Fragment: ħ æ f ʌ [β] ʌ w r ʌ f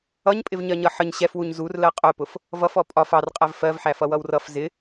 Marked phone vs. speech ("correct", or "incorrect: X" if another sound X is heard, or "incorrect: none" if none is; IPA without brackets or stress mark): incorrect: w